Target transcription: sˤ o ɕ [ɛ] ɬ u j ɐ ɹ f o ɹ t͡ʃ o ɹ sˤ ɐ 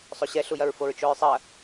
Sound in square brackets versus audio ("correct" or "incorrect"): correct